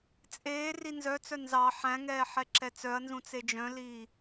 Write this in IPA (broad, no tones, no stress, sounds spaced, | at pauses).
t͡sʼ eː r i n z œ t͡s œ n z ɑ ħ æ̃ ŋ ɛː ħ ɛ ǁ ɛ t͡s œ ɐ̯ n z ũ t͡s e d͡ʒ œ̃ l iː